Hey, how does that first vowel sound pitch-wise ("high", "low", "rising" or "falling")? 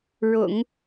low